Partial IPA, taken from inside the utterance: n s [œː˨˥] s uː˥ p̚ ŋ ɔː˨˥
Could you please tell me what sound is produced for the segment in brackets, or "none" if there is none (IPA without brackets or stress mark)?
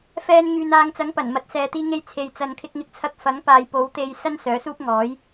œː˨˥